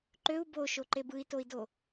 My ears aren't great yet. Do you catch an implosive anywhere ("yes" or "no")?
no